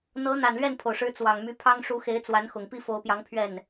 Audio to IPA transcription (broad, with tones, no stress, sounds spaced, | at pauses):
n̪ ɤ˧˥ n̪ a˨˩ n l ɥ ɛ˥˩ n pʰ o˩ ʊ̯ ʂ ɻ̩˧˥ t͡s w ɑ˨˩ ŋ m y˧˥ pʰ ɑ˥ ŋ ʂ u˧˥ x e˧˥ ɪ̯ t͡s w a˧˥ n x ʊ˨˩ ŋ p i˥˩ f o˧˥ ʊ̯ p j ɑ˧˥ ŋ pʰ ɥ ɛ˥˩ n